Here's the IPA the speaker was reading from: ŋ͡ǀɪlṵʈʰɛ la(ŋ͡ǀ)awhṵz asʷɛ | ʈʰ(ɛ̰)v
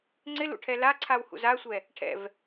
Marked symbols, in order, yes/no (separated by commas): no, yes